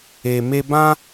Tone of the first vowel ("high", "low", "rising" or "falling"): low